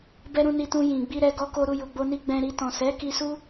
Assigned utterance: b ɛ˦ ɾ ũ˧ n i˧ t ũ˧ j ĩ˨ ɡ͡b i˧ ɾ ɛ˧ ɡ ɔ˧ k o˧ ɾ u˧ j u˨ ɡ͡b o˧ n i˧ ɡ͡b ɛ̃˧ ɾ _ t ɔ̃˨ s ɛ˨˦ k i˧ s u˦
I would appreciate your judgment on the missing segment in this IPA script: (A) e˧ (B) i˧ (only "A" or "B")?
B